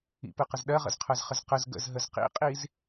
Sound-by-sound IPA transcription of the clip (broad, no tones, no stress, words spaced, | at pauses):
ḭpɯqəz ɗɜʁə̰zqʰɜzχəz qəz ɡə̰zɦəz qḭqʼiz